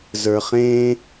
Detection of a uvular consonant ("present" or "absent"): present